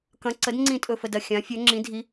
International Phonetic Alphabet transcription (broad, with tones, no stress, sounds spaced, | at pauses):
k ɐ̃˨˥ ǀ ə˨˥ d ŋ͡ǀ ĩ˦˨ tʼ ɵ˦˨ f ə˦˨ d ɐ˦˨ xʲ ã˨˥ fʲ ɵ˨˥ ŋ͡ǁ ĩ˨˥ dʱ i˨˥